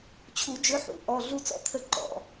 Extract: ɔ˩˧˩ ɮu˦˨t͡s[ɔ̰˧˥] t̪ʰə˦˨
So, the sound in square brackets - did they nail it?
yes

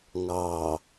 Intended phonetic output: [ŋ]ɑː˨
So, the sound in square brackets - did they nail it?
yes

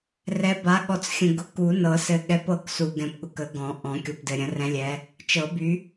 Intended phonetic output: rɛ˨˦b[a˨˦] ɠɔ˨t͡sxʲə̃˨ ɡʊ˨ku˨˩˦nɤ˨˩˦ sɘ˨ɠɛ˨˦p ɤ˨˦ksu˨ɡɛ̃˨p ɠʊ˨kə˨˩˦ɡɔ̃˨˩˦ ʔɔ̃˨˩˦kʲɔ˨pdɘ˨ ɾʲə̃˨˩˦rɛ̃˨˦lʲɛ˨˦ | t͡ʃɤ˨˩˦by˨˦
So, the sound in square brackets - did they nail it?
yes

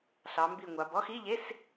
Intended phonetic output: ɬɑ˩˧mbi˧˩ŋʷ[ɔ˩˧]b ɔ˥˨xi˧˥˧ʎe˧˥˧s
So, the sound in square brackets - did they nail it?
no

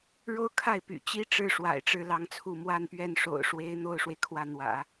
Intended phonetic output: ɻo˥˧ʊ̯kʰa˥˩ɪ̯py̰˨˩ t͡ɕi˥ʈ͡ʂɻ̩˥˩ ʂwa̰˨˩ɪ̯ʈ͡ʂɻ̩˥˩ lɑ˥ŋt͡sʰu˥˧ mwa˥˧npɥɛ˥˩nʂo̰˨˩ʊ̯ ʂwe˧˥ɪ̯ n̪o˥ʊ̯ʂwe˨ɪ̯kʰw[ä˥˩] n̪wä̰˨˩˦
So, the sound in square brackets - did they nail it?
yes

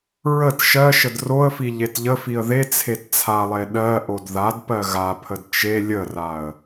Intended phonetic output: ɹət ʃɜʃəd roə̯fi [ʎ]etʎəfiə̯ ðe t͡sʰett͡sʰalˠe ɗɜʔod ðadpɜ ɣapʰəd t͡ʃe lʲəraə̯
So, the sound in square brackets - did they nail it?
yes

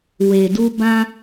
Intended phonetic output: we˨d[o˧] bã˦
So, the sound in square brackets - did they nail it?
no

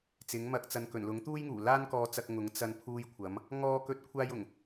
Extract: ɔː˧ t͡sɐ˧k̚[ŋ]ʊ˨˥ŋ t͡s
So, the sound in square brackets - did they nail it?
yes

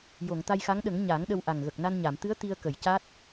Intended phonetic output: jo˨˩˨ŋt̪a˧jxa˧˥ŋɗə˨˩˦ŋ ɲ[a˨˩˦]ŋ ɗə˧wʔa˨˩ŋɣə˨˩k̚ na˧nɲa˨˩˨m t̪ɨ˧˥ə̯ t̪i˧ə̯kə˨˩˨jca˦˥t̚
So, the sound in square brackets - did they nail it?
yes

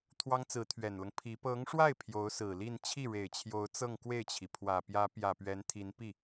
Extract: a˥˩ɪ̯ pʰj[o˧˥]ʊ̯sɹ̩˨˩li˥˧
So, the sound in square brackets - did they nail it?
yes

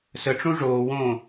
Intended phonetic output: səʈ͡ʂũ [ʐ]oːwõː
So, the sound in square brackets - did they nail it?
yes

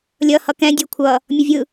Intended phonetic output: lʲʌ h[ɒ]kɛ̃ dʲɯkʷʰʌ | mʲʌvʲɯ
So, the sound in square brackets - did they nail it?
no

